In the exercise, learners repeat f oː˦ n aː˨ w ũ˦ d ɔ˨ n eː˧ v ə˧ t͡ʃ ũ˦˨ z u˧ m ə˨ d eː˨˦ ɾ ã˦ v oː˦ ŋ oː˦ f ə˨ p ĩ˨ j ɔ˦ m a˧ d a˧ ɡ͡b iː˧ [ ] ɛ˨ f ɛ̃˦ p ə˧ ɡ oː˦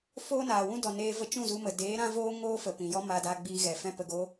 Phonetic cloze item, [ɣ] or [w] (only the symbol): ɣ